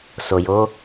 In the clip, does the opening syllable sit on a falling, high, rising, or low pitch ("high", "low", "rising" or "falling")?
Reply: low